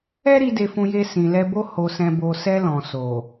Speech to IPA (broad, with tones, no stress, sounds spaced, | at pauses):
ɛ˦ ɾ i˧ d e˧ f ũ˧ j e˧ s ĩ˨ l ɛ˧ b o˦ h o˧ s ɛ̃˧ b o˧ s ɛ˧ l ɔ̃˨ s o˨